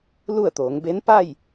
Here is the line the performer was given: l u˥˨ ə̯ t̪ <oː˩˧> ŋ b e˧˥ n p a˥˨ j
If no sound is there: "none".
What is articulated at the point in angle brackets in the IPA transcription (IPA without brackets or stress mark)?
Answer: oː˩˧